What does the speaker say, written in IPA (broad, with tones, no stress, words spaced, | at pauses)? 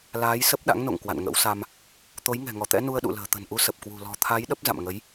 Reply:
laː˨˦j sə˦˥p̚ɗa̰˧˥ŋno̰˧˨ŋ kwa̰˧˨nŋə̰˧˥wsa˧m | t̪o˨˦jŋɛ̤˨˩ŋɔ˧˩t̪ɛ̰˧˥ nu˧ə̯ɗṵ˧˨lə̤ː˨˩ t̪ə̤˨˩nʔu˨˦sə˨˩p̚kwṳ˨˩ lɔ̤˨˩t̪ʰa˨˦j ɗə˦˥p̚za̰˧˨mŋə˨˦j